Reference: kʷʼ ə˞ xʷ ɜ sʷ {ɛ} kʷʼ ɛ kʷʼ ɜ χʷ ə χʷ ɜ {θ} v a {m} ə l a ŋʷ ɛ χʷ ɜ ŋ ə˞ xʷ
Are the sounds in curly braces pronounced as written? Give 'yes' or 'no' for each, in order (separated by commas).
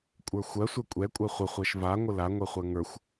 yes, no, no